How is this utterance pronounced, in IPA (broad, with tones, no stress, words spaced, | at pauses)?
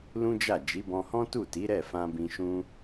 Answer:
lũ˦d͡ʒa˦˨ d͡ʒi˨˦bɔ̃˧hɔ̃˦ tu˦˨ti˨˦ ɾɛ˦˨fã˧bĩ˧ ʃũ˦